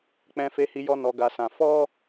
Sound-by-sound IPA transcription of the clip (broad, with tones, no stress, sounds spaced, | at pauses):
k͡p ɛ̃˧ f e˧ h i˧ j ɔ˧ n ɔ˧ ɡ a˧ s ã˧ f ɔ˦